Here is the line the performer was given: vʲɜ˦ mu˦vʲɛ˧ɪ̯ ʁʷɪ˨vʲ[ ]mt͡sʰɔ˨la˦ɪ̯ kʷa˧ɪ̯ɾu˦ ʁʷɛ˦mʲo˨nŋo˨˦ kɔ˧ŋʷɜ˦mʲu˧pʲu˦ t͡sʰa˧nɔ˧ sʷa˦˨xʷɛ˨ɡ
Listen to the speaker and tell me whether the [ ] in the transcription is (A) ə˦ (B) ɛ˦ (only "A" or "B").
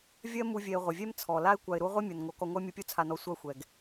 B